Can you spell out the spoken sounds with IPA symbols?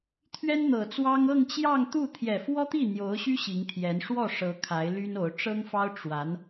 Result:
t̪ʰɥɛ˥nn̪ɤ˨˩t͡swɑ˥ŋ ɤ˥˧ŋt͡ɕjɑ˥˧ŋt̪u˥˩ t̪ʰjɛ˨˩fwɔ˥t̪i˥˩ n̪jo˧˥ʊ̯ɕy˥ ɕi˧˥ŋt̪ʰjɛ˧˥n ʂwɔ˥˩ ʂɤ˧˥ kʰa˧˥ɪ̯ly˥no˧˥ʊ̯ ʈ͡ʂɤ˥ŋfɑ˥ʊ̯ ʈ͡ʂwa˧˥n

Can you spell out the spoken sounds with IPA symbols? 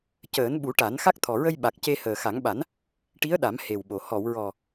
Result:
cəː˨˩˦nɓu˨˩˦ʈa˨˩˦n xa˦˥k̚t̪ʰɔ˨˩ɹə˧jɓa˨˩k̚ ce˧ həː˨˩xa˨˩˦ŋɓa˨˩˦n | ʈi˧˥ə̯ɗa˨˩˦m he˨˩wɓo˨˩ hɔ˨˩˨wɹɔ˨˩

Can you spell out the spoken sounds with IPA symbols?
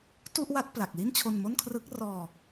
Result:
tu˥˩ʔwa˦˥t̚ pla˨˩k̚ li˥˩nt͡ɕʰo˧nmo˥˩nkʰrɯ˦˥k̚ rɔː˧

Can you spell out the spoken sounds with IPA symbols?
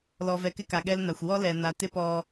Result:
lɔ˨vɛ˨kɪ˦ka˨ ɠɛ˦lna˨xʷ wɔ˦lɛ˨na˨ tɪ˦pɔ˨

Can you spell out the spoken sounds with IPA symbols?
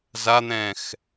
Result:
zan̪ɛ̃ːx

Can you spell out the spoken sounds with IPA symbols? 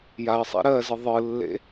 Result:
jaə̯sˤḭ ɾɜzɯ ðˤɯlːḛ

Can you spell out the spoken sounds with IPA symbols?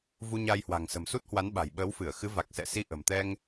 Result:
vu˧ɲa˧jhwa̤˨˩ŋ sə̤˨˩msu˦˥t̚hwa˨˦n ɓa̤˨˩jɓəː˨˦wfɨ˧˩ə̯ xɨ˨˦va˨˩k̚ sɛ̰˧˨si˧ ʔə̤˨˩mt̪ɛ˧ŋ

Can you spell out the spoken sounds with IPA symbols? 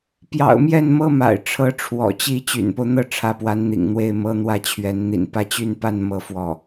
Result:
pjɑ̰˨˩ʊ̯mjɛ˥˩n mɤ˥ma̰˨˩ɪ̯ ʈ͡ʂʰɤ˧˥ʈ͡ʂʰwɔ̰˨˩t͡ɕi˥˩ t͡ɕy̰˨˩npo˦ʊ̯n̪ɤ˥˩ ʈ͡ʂʰä˧˥pwa˧˥nn̪ḭ˨˩ŋn̪we˥˩ɪ̯ mɤ˥n̪wä˥˩t͡ɕʰɥɛ˧˥n n̪ḭ˨˩npä˥˧ t͡ɕy˥˧npa˥˧n mɤ˥˧fwɔ˥˩

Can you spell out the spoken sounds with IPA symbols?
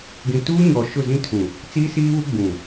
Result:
ɡĩ˨tuː˦ɲɔ˨ ʃʊ˦˨zĩ˦tʰũ˨ | t͡siː˦siː˦βu˦ ɡ͡bũ˨

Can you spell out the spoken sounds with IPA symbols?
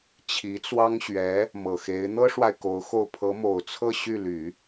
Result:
t͡ɕʰi˧˥t͡swɑ˥ŋ ɕɥɛ˧˥ | mɤ˨˩xe˧˥ɪ̯ n̪ɤ˥ʂwa˨ɪ̯ ko˧˥ʊ̯xo˥˩ʊ̯ pʰɤ˧˥mo˨˩ʊ̯t͡sʰɤ˥˧ ɕy˥˩ly˨˩˦

